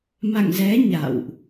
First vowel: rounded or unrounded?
unrounded